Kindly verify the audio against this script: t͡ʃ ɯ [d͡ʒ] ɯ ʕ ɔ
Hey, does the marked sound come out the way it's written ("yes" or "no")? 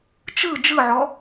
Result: yes